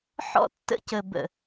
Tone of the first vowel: high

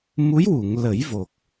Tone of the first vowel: rising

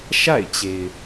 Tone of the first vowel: falling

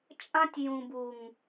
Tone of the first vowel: high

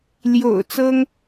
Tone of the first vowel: low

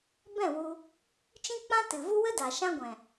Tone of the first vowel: falling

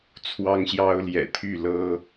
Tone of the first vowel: high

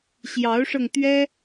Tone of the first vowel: rising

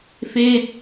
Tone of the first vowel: falling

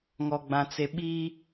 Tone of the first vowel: low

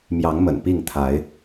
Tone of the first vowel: rising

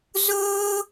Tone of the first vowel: high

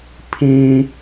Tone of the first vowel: high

